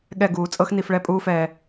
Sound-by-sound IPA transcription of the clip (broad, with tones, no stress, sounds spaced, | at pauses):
ɠ ɛ˧˩ ɡ uː˩˧ t͡sʼ ɤ˥ x n i˧ f ɭ ɛ˥ pʼ uː˥ f ɛː˧